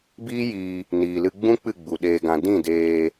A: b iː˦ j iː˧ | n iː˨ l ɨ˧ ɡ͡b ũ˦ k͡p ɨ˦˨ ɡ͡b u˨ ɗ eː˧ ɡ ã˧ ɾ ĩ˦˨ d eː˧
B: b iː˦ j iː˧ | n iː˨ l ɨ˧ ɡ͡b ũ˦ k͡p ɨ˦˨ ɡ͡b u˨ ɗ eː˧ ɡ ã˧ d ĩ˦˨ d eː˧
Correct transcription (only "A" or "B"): B